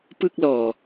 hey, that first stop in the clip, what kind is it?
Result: plain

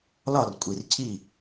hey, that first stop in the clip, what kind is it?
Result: ejective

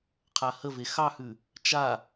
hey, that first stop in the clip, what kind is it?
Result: aspirated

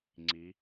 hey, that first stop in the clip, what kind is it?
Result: click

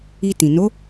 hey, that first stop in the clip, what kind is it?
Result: plain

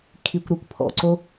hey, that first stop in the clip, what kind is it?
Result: aspirated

